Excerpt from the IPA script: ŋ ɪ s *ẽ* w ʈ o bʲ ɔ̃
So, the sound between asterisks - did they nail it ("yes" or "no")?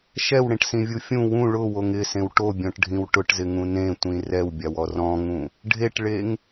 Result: yes